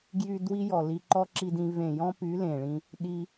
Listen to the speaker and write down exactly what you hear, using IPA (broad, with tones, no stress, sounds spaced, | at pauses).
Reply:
ɡ j y˧ d w i˦ j ɔ˨ l i˧ ǃ ɔ˦ ǁ i˧ d ĩ˧ v ẽ˨ j ɔ̃˦ p y˨˦ l ẽ˨ ɭ ĩ˧ | ɗ i˧